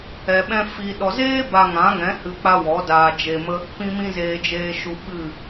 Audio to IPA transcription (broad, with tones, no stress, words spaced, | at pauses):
ɛ˨ɓɛ̃˧ fi˨ɗɔ˨zeː˦ ba˧ŋã˨˦ŋɛ̃˨˦ hɨ˧k͡pa˦wɔ˨˦ daː˧d͡ʒe˧mə˦ | pĩ˧mĩ˧zeː˨ d͡ʒeː˨ʃu˨ ɓɨ˦˨